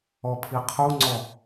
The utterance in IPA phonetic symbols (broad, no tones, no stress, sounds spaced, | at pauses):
ɔ pʰ i qʰ u ŋ͡ǀ ɔ